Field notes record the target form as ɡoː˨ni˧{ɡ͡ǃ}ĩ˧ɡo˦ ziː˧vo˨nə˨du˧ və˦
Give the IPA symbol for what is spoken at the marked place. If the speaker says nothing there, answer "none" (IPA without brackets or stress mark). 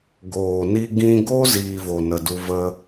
ɡ